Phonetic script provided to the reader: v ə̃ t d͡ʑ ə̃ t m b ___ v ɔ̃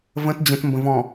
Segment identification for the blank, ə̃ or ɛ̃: ə̃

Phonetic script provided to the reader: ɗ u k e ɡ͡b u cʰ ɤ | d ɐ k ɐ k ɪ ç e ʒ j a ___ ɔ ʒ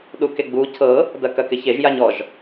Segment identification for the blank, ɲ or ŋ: ɲ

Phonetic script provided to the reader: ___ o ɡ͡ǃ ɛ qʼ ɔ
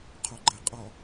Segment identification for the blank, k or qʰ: qʰ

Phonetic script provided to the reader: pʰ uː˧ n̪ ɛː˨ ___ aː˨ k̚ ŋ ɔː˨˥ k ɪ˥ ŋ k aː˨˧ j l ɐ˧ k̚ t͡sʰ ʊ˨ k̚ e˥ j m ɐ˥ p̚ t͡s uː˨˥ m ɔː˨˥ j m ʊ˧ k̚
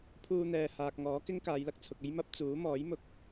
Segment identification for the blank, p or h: h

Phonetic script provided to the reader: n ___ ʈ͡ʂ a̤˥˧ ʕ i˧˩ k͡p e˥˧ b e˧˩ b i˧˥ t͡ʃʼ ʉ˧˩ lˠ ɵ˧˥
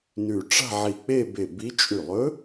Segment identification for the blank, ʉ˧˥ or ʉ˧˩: ʉ˧˩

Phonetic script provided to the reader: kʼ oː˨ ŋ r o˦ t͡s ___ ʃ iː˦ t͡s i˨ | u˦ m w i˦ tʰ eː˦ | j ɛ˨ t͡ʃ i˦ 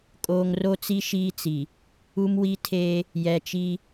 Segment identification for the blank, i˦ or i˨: i˦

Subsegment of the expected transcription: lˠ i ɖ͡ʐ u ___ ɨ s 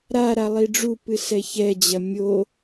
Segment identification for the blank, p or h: p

